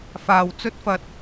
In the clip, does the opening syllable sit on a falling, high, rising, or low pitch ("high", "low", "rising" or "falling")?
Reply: low